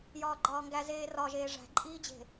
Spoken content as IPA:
j ɒː ɡ͡ǃ ɒː ŋ ɡ æ z eː r ɒ ʒ eː ʐ æ̤ ǃʼ iː d͡ʑ e̤

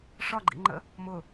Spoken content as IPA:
ʂ ɒ ɡ͡ǃ ḭ ŋ͡ǃ ə̰ | m ʊ

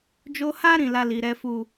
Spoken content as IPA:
d͡ʒ o˧ h a˦ ɾ ĩ˦˨ l a˧ l i˨ ɾ ɛ˨˦ f u˦˨

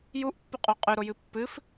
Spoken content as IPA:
j u ʔ pː u qʼ u qʼ ʉ ɾ o j ɨ pː ɨ f

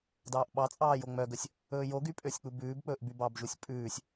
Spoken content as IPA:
d ɑː ʔ ɓ ɑ t͡sʼ ɑː j o ŋ͡m œ ɡ ɵ sʲ | ɵː j o ɡ y pʼ ø sʲ k͡p u b ʉː b k͡p ɵː ʔ b y b ɑ b ʒ u sʲ pʼ ʉː sʲ

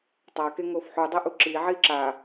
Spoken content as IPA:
tˤ a k e ŋ o f ħ u dˤ ɛ ʔ u ǁ i ʕ i ǁ a

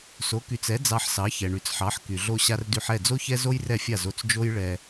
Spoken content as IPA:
s o˩˥ k y˩˥ t͡s ɛ˩˥ d͡z ɑ˧ ħ s ɑ˩˥ ç ɛ˩ ɳ y˩ t͡s ħ ɑ˩˥ ħ k y˩ ɮ o˧ ɕ a˧ r d y˧ ħ ɛ˥˩ d͡z o˥ ç ɛ˥ z o˥ j r ɛ˥˩ fʲ a˥˩ z o˧ t͡s d͡ʒ o˥ j ɭ ɛ˧

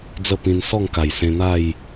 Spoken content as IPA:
d͡z ə˥˧ p ĩ˧ n s ɔ˥˧ ŋ k a˨˩ j s ẽ˧ n̪ a˥˧ j

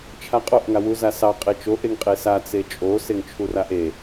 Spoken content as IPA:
t͡ʃʰ a qʼ o ʔ ŋ a w u z a s ɑ qʼ e t͡ʃ o ʔ e ŋ qʼ e s a t͡s e t͡ʃʼ o s e ŋ t͡ʃʰ u r a ʔ e

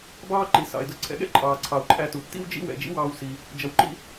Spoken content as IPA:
b ɑː˥ ǃ i˩ s ɑ̰˩ ɪ̯ d ʊ˧ ǀʰ ɛ̰˧ ɠ ɛ̰˥ ǃʼ ɑː˩ ǀʰ ɑ˩ ʊ̯ ǃʼ æ˧ t u˩ tː ḭ˥ w d͡ʒ ḭ˥ w ɛ̰˩ d͡ʒ ḭ˥ w ɑː˧ w s i˩ | d͡ʒ ʌ˩ w ǃ ḭ˧

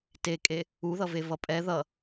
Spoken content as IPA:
t e kʼ e | u ð ʌ v e v ʌ pʼ ɛ ð ʌ

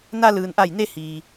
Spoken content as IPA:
n a˧ l ɯː˩ n ʔ a˧˩ j n e˧ h iː˩

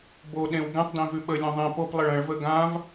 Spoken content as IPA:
b o ɗ ẽ w ɡ ɛ̃ tˤ d ẽ v ʉ ɓ ə lʲ õ ðˤ ẽ p o p lˠ ə ɭ ə̃ ɭ v ə ɡ ã v

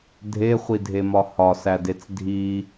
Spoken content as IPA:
dʱ e χʷ i dʱ e m ɒ h ɒ s æ d e t͡s dʱ i

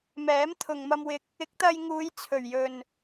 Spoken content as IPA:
m ɛː˨˥ m t̪ʰ ʊ˨ ŋ m ɐ˧ m w ɪ˧ k̚ | ɪ˨˥ k̚ t̪ ɐ˧ j ŋ uː˨˧ j t͡sʰ ɵ˨˩ ɥ j ɵ˨ n

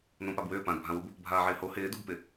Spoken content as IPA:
n õ p a b w ʏː p ã d bʱ ã w u b | bʱ aː ʕ ɪː h o h ɪː d u b p ɪ

